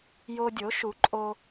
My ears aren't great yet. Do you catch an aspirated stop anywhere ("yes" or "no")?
no